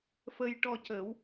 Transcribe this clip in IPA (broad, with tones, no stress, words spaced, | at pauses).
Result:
fə˧jʈɔ˧cə˨˩˦w